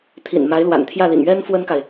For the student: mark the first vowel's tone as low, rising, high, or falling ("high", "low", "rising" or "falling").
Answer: low